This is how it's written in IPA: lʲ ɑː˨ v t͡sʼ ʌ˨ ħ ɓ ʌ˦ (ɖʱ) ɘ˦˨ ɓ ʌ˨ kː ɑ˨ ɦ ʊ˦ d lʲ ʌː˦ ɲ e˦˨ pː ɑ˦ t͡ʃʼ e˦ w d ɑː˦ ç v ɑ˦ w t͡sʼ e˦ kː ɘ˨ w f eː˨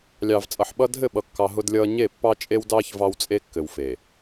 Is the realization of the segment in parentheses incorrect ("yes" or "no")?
yes